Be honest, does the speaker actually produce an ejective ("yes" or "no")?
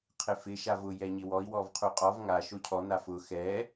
yes